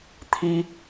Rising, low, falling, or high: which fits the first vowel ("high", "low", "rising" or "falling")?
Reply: high